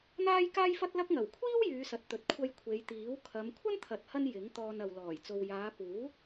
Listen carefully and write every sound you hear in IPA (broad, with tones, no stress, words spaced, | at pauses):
n̪aː˥jkaː˥jfɐ˥t̚lɐ˥k̚ ŋɐ˨˩wkʷʰiː˥w jyː˨˧sɐ˨t̚t̪ɵ˨t̚ kʷʰɐ˧jkʷʰe˨˧jt̪iː˨˥w kʰɐ˨˧m kʷʰɐ˥nt̪ʰɐ˨t̚hɐ˧n jɪ˨˥ŋ t̪ɔː˧nɐ˨wlɔː˨˩j t͡so˨wjaː˨˧ puː˨˥